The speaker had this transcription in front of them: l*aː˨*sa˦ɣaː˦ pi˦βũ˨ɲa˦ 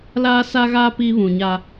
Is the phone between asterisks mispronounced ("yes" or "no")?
yes